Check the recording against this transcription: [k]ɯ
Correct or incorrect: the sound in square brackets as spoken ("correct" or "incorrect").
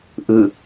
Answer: incorrect